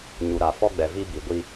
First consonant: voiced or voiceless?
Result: voiced